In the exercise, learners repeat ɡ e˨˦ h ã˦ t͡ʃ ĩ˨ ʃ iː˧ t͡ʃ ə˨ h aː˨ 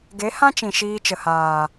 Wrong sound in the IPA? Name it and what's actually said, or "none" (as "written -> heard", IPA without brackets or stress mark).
none